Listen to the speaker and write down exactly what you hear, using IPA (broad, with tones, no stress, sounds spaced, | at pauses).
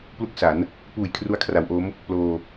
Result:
p l u˥˩ k̚ s a˩˦ n | p uː˨˩ j kʰ r u˧ a̯ kʰ r a˩˦ w ʔ o˦˥ m | p l oː˧